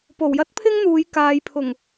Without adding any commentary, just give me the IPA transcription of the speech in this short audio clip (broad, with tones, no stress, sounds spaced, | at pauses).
p o˨˩ w j ɐ˥ t̚ pʰ ɪ˥ ŋ n̪ uː˨˧ j k aː˨ j pʰ ʊ˨˩ ŋ